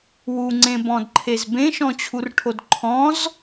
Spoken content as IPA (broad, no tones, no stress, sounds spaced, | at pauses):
w u ŋ͡ǀ ẽ b ɔ̃ d ǃʰ e z b ẽ ʃ ɔ̃ t͡ɕʰ u r ʈʰ o d ǃʰ ɔ̃ z